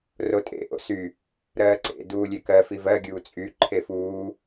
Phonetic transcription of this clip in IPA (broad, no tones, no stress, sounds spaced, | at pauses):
r o tʼ ḛ ʔ o̰ s y | ɾ ɜː ǀ ḛ d uː lʲ e k ɜ f i v ɜ ɡʲ uː t͡sʼ y ǃʰ e f uː